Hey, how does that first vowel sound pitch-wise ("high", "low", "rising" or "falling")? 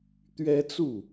high